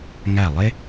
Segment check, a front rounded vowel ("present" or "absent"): absent